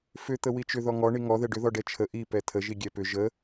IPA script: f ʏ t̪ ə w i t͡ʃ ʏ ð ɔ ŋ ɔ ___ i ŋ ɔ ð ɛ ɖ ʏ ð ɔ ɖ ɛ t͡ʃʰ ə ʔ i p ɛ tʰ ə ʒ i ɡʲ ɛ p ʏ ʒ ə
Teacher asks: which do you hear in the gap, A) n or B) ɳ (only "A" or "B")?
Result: B